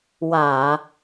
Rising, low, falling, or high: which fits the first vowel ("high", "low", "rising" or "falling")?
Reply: low